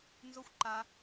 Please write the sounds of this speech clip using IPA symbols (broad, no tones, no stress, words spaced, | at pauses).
nzoxʷ ǃa